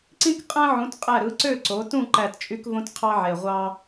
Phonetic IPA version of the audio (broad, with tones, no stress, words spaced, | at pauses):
ǀĩ˥kqʼæ̃˥ ʕũ˨˥tqʼæ˦˨ɾɯ˨˥ ǀø˦˨ǀo˩˧tũ˦˨ ǃæ˦˨tt͡ʃʼy˥kvõ˥t qʰɑ˥ʕe˨˩ ʁʷɑ˥